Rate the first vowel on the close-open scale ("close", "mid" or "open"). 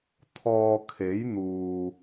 mid